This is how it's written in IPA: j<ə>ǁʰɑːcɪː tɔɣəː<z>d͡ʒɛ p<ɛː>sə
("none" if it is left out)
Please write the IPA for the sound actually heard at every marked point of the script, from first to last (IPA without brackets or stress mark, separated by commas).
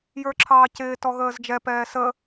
ə˞, z, ɛː